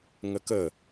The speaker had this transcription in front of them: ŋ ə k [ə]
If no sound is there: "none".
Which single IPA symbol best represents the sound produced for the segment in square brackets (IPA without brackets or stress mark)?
ə